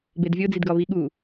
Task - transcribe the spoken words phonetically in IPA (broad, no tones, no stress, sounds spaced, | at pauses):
b e d vʲ o d͡z i d ɡ ɒ β i ɠ u